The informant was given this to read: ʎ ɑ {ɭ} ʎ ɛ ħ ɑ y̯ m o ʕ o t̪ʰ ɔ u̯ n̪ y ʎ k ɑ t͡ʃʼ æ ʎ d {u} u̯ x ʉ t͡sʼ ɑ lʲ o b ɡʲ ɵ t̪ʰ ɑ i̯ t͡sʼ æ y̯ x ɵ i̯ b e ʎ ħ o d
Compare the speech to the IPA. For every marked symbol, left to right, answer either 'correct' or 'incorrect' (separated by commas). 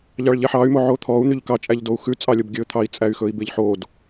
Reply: correct, incorrect